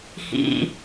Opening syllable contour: low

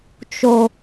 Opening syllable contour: low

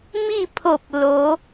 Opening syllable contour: falling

